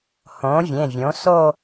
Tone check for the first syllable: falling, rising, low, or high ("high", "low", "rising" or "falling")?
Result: rising